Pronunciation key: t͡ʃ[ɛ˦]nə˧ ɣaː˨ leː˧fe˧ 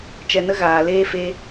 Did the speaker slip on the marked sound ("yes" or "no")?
yes